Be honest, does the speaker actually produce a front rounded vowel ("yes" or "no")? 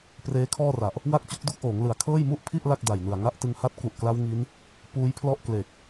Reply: no